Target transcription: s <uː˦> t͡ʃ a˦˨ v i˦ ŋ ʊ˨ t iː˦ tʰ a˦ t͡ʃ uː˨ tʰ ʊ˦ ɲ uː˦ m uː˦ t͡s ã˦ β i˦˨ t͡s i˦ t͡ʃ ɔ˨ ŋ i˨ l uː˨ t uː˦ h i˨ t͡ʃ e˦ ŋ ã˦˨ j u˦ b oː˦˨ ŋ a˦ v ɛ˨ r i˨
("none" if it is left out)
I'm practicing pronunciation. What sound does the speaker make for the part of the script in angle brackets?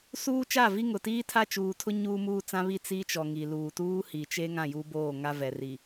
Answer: uː˦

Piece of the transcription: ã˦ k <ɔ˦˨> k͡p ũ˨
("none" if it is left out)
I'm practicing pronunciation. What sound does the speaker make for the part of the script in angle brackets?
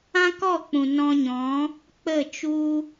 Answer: ɔ˦˨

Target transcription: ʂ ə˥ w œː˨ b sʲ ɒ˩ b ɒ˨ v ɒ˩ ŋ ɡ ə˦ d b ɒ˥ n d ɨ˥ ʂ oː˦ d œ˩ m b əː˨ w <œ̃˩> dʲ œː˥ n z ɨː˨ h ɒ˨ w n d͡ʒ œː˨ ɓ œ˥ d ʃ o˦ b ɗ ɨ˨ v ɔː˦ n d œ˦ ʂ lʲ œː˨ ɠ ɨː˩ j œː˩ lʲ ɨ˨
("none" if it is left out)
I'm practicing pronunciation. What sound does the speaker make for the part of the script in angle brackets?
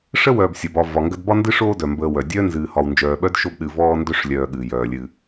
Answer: œ˩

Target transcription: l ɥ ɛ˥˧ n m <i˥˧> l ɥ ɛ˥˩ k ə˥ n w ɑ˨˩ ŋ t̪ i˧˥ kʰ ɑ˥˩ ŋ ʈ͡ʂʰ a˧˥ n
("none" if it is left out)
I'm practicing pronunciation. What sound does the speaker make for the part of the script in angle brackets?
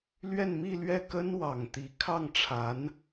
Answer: i˥˧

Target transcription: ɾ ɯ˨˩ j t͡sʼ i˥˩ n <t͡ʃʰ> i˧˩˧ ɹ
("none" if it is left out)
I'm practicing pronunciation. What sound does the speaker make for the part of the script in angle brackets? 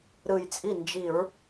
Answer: d͡ʒ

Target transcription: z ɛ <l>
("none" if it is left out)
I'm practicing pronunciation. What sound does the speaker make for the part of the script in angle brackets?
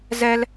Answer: l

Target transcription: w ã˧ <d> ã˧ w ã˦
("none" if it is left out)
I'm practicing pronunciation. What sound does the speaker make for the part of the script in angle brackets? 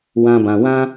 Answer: b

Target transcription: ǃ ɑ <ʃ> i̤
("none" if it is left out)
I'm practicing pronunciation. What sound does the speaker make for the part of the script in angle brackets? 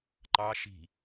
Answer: ʃ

